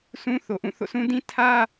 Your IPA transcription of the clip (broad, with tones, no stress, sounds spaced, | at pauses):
s ũ˦ θ o˨ ʔ ũ˦˨ θ o̰˦˨ s ũ˦ d ĩ˦ tʰ ä˦